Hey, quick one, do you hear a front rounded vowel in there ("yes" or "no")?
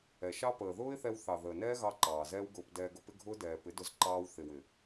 no